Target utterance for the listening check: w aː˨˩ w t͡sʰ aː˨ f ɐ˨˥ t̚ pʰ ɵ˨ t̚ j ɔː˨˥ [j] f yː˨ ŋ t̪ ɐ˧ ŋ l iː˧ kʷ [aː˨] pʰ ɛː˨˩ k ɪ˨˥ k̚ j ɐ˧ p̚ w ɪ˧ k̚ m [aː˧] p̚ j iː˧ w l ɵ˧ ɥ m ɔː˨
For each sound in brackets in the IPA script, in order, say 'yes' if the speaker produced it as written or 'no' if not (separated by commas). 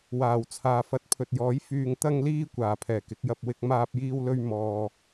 yes, no, yes